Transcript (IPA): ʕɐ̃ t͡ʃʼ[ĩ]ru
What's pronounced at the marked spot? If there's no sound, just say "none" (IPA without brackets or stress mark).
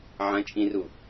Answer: ĩ